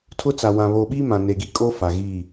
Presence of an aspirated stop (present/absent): present